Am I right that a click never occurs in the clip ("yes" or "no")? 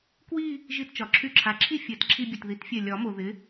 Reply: no